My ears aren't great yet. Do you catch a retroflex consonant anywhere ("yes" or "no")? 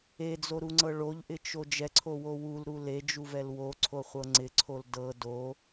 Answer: yes